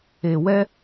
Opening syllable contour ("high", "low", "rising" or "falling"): low